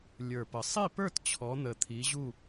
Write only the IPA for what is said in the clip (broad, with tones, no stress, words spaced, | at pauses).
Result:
lʲə˞˨˩pə˨˩ sˤi˥˨pə˞˥˨t t͡ɕʰɔ˨˦n̪ə˨˩t̪ʰi˨˦ ʑu˥˨